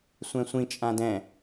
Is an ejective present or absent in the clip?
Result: present